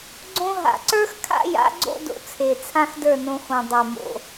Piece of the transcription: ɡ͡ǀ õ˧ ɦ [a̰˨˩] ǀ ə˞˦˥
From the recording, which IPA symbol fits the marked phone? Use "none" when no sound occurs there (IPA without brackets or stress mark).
a̰˨˩